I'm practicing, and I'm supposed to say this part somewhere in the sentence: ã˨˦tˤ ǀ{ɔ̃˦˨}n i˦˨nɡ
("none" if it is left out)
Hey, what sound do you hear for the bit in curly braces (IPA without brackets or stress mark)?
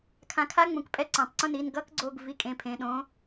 õ˦˨